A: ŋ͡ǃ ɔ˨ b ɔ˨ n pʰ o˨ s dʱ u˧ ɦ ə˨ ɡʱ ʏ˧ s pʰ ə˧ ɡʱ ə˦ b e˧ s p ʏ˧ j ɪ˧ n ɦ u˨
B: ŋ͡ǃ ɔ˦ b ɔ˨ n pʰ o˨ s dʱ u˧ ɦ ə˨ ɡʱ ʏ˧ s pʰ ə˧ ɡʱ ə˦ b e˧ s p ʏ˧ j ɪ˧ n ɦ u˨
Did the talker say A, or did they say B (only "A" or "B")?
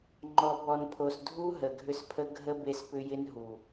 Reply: A